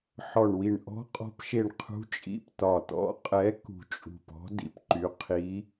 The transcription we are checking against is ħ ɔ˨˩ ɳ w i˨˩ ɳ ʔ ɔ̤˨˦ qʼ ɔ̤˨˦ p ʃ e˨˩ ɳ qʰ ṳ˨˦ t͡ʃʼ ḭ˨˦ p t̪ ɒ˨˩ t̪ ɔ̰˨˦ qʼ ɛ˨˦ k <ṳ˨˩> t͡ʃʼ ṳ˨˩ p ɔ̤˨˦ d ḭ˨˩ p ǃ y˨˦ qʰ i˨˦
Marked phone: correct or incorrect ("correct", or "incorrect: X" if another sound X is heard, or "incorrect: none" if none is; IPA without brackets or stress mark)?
correct